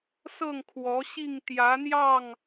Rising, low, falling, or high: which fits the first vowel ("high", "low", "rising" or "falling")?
falling